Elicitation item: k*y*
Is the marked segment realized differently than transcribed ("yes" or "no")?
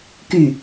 no